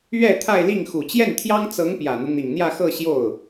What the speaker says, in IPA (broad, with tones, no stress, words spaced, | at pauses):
ɥɛ˥˧ t̪ʰa˥˧ɪ̯li˥˩ŋ xu˨˩t͡ɕjɛ˥˩nt̪ʰjɑ˥ŋ t͡sɤ˧˥ŋ pjä˨˩n̪u˦ n̪i˨˩ŋn̪jä˥˧xɤ˥˧ ɕjo˥˩ʊ̯